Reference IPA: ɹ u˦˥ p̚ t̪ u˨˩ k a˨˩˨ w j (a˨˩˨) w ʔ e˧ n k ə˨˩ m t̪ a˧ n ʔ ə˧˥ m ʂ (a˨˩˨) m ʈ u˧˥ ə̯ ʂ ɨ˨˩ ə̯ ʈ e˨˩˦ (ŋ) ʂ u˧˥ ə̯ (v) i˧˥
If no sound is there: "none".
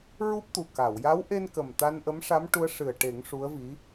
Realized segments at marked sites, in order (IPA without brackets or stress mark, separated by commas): a˧˥, a˧˥, ŋ, v